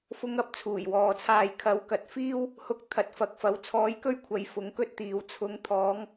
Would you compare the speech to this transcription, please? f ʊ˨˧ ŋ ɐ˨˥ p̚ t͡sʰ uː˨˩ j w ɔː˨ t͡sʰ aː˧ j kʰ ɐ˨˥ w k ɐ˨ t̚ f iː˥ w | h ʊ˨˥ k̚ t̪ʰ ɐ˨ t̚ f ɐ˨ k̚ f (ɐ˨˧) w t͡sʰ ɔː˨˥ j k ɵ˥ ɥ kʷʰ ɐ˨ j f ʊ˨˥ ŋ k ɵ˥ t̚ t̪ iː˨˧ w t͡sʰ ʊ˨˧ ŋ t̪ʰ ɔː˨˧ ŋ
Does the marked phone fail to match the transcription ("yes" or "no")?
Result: no